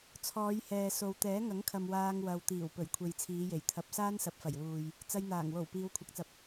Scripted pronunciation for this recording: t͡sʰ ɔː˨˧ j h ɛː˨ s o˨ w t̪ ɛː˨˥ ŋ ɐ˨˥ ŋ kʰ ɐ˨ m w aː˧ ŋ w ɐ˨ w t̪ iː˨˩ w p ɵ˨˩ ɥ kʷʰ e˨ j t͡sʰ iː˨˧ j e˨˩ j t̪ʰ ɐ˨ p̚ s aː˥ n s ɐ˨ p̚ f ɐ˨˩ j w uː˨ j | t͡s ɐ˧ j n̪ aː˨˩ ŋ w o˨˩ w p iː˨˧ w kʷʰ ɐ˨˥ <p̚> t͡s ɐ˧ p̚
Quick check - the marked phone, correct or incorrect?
incorrect: k̚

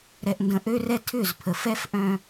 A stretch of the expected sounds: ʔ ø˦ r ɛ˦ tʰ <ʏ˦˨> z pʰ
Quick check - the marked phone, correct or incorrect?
correct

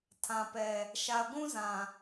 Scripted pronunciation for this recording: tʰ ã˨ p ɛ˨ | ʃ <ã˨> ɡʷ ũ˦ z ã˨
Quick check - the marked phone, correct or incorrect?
incorrect: a˨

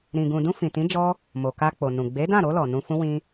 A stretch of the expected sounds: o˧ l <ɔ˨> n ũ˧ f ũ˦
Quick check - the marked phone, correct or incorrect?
correct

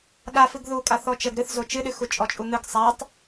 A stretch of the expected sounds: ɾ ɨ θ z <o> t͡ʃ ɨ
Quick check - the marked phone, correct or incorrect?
correct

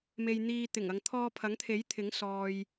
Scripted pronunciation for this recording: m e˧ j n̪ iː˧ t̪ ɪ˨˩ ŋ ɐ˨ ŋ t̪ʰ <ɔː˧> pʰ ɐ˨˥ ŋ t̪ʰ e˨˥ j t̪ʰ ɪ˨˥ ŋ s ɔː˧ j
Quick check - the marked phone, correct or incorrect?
correct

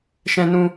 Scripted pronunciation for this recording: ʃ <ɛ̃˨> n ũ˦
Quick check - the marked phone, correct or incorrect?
incorrect: ɛ̃˦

